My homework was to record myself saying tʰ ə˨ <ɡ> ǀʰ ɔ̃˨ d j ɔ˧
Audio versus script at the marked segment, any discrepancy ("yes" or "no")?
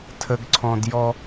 no